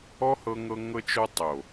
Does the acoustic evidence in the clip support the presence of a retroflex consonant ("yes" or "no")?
no